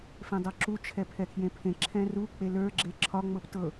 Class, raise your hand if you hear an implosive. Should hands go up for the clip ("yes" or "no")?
no